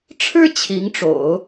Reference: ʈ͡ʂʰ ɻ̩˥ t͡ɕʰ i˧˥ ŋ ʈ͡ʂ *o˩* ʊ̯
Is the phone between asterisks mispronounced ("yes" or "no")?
yes